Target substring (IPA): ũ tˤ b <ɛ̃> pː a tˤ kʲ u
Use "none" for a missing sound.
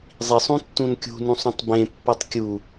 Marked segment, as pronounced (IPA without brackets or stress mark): ẽ